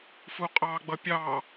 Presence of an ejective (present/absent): present